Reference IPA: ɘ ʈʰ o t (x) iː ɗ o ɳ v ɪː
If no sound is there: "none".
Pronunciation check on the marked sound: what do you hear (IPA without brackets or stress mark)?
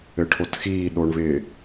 x